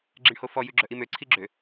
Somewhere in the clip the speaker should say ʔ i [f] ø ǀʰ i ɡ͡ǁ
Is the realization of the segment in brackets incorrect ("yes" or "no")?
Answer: yes